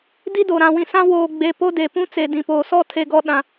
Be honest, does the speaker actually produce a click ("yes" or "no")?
no